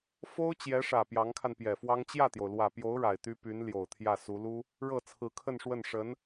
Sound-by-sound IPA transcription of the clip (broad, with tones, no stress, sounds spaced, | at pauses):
f o˥ ʊ̯ t͡ɕ j ɛ˧˥ ʂ ä˨˩ p j ɑ˧˥ ŋ kʰ a˧ n p j ɛ˨˩ f w ɑ˥ ŋ t͡ɕ j ä˥˩ t̪ j o˩ ʊ̯ l w ä˨˩ p j o˧˥ ʊ̯ ɻ a˨˩ ɪ̯ t̪ y˥ p y˧˥ n l j o˨˩ ʊ̯ t̪ʰ j ä˥˩ s u˧˥ l u˥ | ɻ ɤ˥˩ t͡sʰ ɹ̩˧˥ kʰ ə˥˧ n ʂ w ə˥˩ n ʂ ə˧˥ n